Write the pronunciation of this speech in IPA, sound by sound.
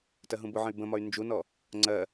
t ɜ ɦ ũ b ʊ ʕ ə̃ y̯ b ə̃ m ɒ y̯ n d͡ʒ u n ɔ | ŋ͡ǀ ɜ

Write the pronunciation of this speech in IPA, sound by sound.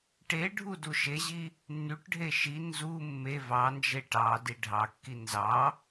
ʈ e ɖʱ u d u ʃ e ʑ i | nː y ʈ ɖʱ e ʃ i n z u mː e v ɑ n d͡ʒ e ʈ ɑ d i ɖʱ ɑ kː i n z ɑ

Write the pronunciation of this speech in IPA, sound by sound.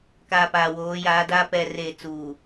k a˨ p aː˨ w oː˨˦ j aː˨˦ d aː˦ p ɛ˨ r eː˨ t͡s uː˨

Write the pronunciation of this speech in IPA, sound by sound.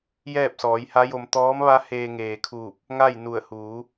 j ɛː˥˨ p̚ s ɔː˩˧ j h a˧˥ j o˧ m t̪ ɔː˧˥ m ʋ a˧˥ h eː˧ ŋ eː˩ kʰ uː˧˩ p̚ | ŋ a˥˨ j n u˧˩ ə̯ h uː˩˧

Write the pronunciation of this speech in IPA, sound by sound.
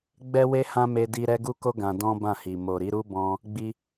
ɡ͡b ɛ˦ w e˦ h ã˦ m e˧ d i˧ ɾ ɛ˦ ɡ u˦ k o˦ ɡ ã˧ d ɔ̃˦ b ã˦˨ h i˨ m o˨ ɾ i˨˦ ɾ u˦ b ɔ̃˧ | ɡ͡b i˧

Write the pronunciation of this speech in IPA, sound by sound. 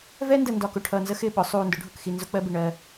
v ɛ˦ n d ə˨ n d ɒ˨ k ʊ˨ ʈʰ ʌː˨ n z ə˦ x ɪ˦˨ ɓ ʊ˨˦ sˤ uː˨ n d ʊ˨˦ ɖʱ ʊ˨ k x i˨ n z ʊ˦ k͡p ɜ˦ b ɪ˨ ɳ ɜ˦

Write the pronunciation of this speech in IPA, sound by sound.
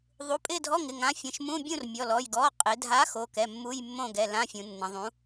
ðˤ u˩˧˩ pʼ ɪ˥˨ dʱ ɔ˧˥˧ ŋ ɪ˩˧˩ ŋ ã˨˥ fʲ ə̃˩˧˩ ʃ m ũ˧˥˧ bʲ ũ˥˨ r mʲ ɔ˩˧˩ l ɔ˩˧˩ j ɡ ɔ˩˧˩ qʼ ɪ˩˧ dʱ a˨˥ x o˩˧˩ k ɛ˩˧˩ mː u˧˥˧ j mː õ˥˨ ɡ ɛ˩˧˩ l ã˧˥˧ fʲ ũ˩˧ nː ə̃˩˧ ðˤ ũ˨˥

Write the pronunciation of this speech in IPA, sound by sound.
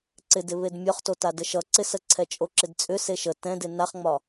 ǀ ɪ d ɪ β e d mʲ ɒ χ t o t a d ə ʃ ʌ ǀ ɪ s ə ǀʰ ɛ t͡ʃʼ o ǁ ɪ d t͡sʼ ʏ s e ʃ ə t ɛ̃ d ɪ n a χ ŋ͡m ɒ

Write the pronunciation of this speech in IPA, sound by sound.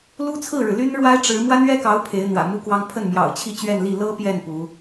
l u˥ t͡sʰ ɹ̩˥˩ ɻ ɻ̩˩ l y˥ n ɻ w a˥ ɪ̯ ʈ͡ʂ ɻ̩˧˥ m w a˥ n ɥ ɛ˥ k ɑ˧˥ ʊ̯ pʰ e˧˥ ɪ̯ n̪ w ä̰˨˩ m u˥ k w ɑ˥ ŋ pʰ ə˥˩ n m j ɑ̰˨˩ ʊ̯ t͡ɕʰ i˥˧ t͡ɕ ɥ ɛ˥˧ n l i˥˩ l ɤ˥ p j ɛ˥˩ n p u˧˥

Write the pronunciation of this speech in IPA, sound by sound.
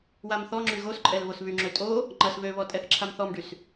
w a m θ ɔ ŋ͡ǁ y ɣ o s ǃʼ ɛ l β o s β y ŋ͡ǁ ø tʼ o | ŋ͡ǃ ɐ s β ø β ɔ tʼ ɛ θ ǁʰ a m θ ɔ m ɖ y s

